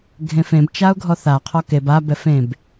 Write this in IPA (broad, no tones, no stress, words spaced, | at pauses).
ɡʱẽfẽb t͡ʃaʊ̯ɡʱɔθa qʰɔkeb a bɛfẽb